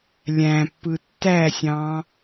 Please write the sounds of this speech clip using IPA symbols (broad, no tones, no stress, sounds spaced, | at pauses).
lʲ æ̃ pː ɯ tː æ sʲ ɑ̃